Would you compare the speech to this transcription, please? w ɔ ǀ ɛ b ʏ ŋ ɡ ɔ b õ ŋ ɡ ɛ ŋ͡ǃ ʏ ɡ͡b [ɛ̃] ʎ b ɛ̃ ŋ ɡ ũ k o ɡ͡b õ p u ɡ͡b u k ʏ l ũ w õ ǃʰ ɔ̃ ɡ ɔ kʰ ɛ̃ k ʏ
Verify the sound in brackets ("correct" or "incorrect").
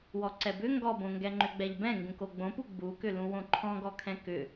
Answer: incorrect